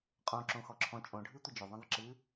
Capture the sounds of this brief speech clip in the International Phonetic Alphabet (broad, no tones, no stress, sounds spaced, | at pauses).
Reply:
qʼ õ ǁ õ x ɔ ǁʰ ɔ̃ t͡ʃʼ õ ɖʱ ɨ tʷ ə d͡ʒ o ðˤ ə̃ ðˤ ə ǁ ɨ